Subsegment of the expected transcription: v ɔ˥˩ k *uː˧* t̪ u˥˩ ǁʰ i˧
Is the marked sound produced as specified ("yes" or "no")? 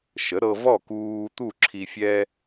yes